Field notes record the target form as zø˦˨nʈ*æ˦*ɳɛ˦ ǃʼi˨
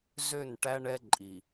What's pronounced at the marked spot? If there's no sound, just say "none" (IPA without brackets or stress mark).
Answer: æ˦